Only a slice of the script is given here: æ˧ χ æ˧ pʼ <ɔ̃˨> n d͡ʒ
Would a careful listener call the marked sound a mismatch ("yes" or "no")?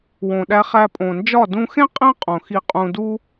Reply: yes